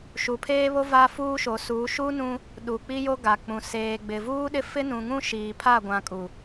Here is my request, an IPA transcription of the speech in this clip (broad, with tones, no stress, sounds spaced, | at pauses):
ʃ u˨ pʰ eː˦ β o˦ v a˦ f uː˦ ʃ o˨˦ s uː˨˦ ʃ u˦ n ũ˦ | ɗ u˨ k͡p i˦ j o˦ ɡ a˨ k͡p ũ˨ s eː˨ ɡ͡b ɪ˨ v uː˦ ɗ ɪ˦ f ɪ˦ n ũ˨ ŋ ũ˦ ʃ iː˨ pʰ a˦˨ ɡʷ ã˨ kʼ u˨